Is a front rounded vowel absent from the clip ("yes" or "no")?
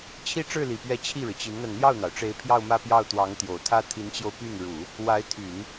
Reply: no